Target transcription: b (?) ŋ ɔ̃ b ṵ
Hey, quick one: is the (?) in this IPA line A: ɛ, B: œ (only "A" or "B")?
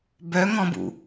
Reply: B